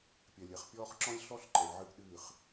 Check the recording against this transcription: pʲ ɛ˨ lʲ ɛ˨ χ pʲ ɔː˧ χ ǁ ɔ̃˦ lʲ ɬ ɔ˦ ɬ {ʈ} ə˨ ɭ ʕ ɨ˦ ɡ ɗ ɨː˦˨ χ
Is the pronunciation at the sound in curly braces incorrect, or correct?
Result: incorrect